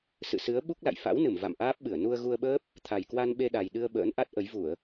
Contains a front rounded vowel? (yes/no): no